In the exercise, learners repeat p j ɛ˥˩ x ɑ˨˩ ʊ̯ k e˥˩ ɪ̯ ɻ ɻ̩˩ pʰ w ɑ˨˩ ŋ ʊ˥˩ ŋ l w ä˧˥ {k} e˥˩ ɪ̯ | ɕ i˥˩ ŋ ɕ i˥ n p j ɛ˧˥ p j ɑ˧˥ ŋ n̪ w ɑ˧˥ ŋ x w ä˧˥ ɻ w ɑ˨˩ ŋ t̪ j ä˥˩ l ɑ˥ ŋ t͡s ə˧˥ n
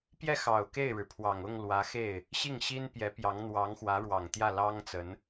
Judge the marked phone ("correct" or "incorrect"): incorrect